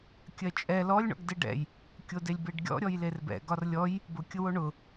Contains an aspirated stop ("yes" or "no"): no